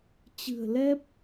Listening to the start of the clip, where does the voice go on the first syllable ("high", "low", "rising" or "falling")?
low